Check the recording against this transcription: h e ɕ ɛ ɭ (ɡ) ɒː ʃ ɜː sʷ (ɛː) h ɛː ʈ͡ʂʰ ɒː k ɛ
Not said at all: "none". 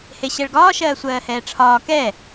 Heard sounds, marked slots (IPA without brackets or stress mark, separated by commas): ɡ, ɜː